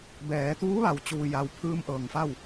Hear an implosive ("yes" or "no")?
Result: no